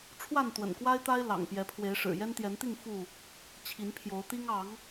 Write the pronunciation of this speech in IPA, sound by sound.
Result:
ʈ͡ʂʰwa˥˨nt̪wə̰˨˩nkwa˦ɪ̯t̪a˦ɪ̯ lɑ̰˨˩ŋ pjɛ˨˦pʰwe˨˦ɪ̯ʂɻ̩˨˩ jɛ˦nt̪jɛ˨˦nt̪i˥˨ŋ fu˥˨ | t͡ɕʰi˨˦npʰjo˨˦ʊ̯t̪i˦ŋ ɑ˨˦ŋ

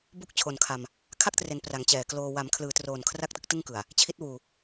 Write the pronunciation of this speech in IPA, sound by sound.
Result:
bu˦˥k̚t͡ɕʰo˨˩nkʰa˧m | kʰa˥˩k̚tre˩˦n pra˩˦ŋt͡ɕɛː˨˩kloː˧ wa˩˦mkʰlɯː˩˦troː˨˩n kʰra˥˩k̚tɯ˥˩k̚tɯ˥˩ŋ kɯ˨˩a̯ | t͡ɕʰi˦˥t̚wuː˧

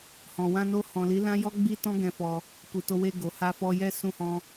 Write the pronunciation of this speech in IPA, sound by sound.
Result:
hɔ̃˨wã˧no˧ hɔ̃˨li˨˦ lã˦jɔ˦ɡ͡bi˦tɔ̃˦ ɡɛ̃˧fɔ˧ | ku˨to˧we˧ ɡo˨ha˧fɔ˧jɛ˦ sũ˦hɔ̃˦

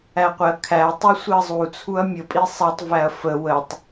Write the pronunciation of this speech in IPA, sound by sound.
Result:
æqʷɪɐ̯kʰæɐ̯ tˤusʷiɐ̯zˤu t͡sʰuɐ̯mʲə pʼisˤɛtˤ væɐ̯fə wətˤ

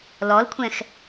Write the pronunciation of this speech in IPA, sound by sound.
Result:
lɔlkʷʰɛ̃x

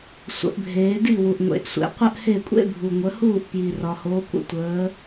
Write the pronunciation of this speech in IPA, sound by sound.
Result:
sʷə̰˨˩˦ʔbʱeː˨˦di˥˨ wu˨ʔŋʷḛ˨˩˦ʔsʷḛ˨˩˦ qʷə˥ʔhe˥˨kʷʼḛ˥ bʱu˨ŋʷə˨˦huː˥˨ʔ pji˨rɒ˨ hoː˨˦kʷə̰˨˩˦ tʷəː˨˦

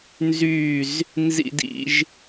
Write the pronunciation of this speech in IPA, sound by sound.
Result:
nzy˥˧z | nzḭ˥dḭ˥ʒ

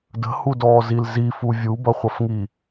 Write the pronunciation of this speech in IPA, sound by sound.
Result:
də̤hudɔːzil zifu vʲubʌχʷʌfŋi

